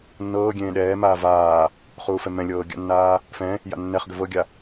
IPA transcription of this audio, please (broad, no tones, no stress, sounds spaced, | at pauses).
nː ɤː ɡʲ ẽː ɗ ɛː m aː v aː | χ uː f ɛ m ɛ̃ lʲ ɤː ɡʲ a̰ nː aː | f ɛ̃ | j a̰ nː ɛ χ ɡ ʏ v ɤ ɡʲ a